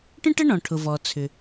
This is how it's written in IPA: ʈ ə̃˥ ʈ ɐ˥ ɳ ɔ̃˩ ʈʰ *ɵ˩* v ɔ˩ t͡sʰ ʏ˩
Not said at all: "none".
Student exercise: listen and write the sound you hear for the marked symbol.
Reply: ʊ˩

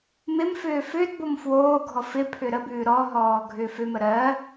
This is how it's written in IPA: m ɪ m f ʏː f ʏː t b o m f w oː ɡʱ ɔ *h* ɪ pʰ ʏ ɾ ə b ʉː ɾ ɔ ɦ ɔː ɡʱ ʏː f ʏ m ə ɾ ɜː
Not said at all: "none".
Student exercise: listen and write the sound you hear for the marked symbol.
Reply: f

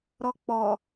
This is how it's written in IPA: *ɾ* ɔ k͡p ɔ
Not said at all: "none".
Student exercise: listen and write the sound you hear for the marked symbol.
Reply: ɾ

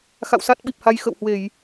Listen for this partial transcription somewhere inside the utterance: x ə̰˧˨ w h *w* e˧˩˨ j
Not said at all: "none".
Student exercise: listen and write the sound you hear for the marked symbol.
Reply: w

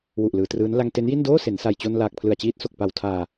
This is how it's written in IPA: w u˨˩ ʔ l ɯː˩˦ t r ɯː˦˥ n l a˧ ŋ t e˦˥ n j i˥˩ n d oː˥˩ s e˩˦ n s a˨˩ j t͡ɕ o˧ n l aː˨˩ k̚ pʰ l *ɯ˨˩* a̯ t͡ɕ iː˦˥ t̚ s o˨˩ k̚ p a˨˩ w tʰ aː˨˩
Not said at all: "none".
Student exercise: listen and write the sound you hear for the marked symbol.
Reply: ɯ˨˩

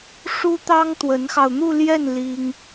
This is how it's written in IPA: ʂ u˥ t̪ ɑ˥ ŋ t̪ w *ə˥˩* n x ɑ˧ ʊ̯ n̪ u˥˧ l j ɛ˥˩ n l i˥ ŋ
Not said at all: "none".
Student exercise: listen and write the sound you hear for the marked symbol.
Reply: ə˧˥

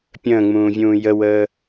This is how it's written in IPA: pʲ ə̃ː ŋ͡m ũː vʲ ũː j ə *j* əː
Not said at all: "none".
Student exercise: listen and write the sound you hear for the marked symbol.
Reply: w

